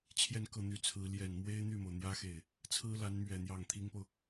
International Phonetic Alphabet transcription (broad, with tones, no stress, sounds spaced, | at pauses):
t͡ɕʰ j ɛ˥˧ n k ɤ˥˩ n̪ y˧˥ t͡sʰ ɹ̩˧˥ l j ɛ˨˩ n m w e˥ ɪ̯ n̪ y˥˩ m o˩ ʊ̯ n̪ j ä˥ x e˥˩ ɪ̯ | t͡sʰ ɹ̩˥ l a˧˥ n m ɥ ɛ˨˩ n̪ j ɑ˥˩ ŋ t̪ʰ i˥ ŋ p o˨ ʊ̯